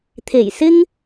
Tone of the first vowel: low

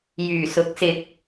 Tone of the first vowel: low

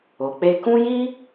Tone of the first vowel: low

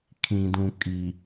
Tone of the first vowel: low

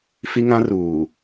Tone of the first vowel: high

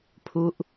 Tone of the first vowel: falling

